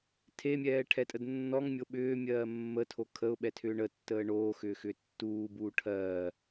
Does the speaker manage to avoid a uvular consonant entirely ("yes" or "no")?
yes